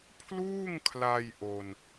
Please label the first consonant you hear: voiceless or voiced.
voiceless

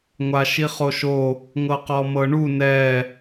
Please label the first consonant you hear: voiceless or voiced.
voiced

